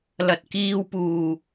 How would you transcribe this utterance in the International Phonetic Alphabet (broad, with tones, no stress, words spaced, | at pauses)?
lɐ˨t̚kiː˧wpuː˨˩